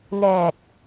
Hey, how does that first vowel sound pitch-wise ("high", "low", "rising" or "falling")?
low